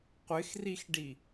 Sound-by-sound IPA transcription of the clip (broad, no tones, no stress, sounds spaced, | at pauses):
qʷ ɪ x r i x ɖ i